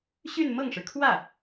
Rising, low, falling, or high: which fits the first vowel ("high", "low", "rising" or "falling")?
falling